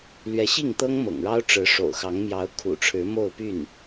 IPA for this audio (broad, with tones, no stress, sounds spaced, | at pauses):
l ɥ ɛ˧˥ ɕ i˥˩ ŋ t̪ ɤ˥ ŋ m ɤ̰˨˩ ŋ ɻ ɑ˥ ʊ̯ ʈ͡ʂ ɻ̩˧˥ ʂ o̰˨˩ ʊ̯ x ɑ˧˥ ŋ m j ɑ˧˥ ʊ̯ kʰ ṵ˨˩ ʈ͡ʂʰ ɻ̩˧˥ m o˥˧ ʊ̯ p y˥˩ n